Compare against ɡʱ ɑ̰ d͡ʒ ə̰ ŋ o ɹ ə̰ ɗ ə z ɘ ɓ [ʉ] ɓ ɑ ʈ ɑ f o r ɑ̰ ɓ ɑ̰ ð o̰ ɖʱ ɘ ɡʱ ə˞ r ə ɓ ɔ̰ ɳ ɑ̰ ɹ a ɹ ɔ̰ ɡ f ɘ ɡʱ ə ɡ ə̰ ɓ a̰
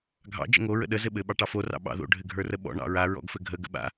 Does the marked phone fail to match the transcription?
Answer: yes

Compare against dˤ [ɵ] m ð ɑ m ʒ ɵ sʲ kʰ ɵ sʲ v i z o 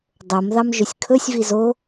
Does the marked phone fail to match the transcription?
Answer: yes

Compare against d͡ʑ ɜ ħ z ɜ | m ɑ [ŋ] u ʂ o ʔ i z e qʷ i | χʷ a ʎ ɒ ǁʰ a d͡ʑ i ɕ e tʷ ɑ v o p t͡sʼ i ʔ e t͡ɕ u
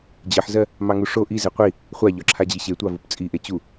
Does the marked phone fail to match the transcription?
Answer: no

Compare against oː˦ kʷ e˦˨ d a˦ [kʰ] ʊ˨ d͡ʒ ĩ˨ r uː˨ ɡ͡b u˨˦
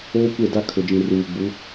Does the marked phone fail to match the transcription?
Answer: no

